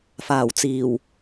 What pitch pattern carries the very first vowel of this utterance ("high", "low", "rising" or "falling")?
low